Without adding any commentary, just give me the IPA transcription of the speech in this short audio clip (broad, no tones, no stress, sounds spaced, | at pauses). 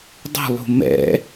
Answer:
dˤ ṳ lˠ ṳ m ɛ̰